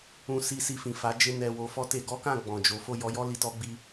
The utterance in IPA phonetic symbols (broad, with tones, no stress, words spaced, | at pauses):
ũ˧si˧ si˧fĩ˨fa˨˦ d͡ʒe˧ nɛ˧wo˧ fɔ˦te˧ ɡɔ˦kã˦˨ ɡ͡bɔ̃˨d͡ʒo˨˦ fo˦˨jɔ˨˦jɔ˦ li˧tɔ˦ɡ͡bi˦